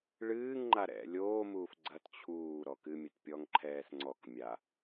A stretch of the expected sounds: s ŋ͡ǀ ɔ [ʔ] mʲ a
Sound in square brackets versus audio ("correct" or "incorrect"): incorrect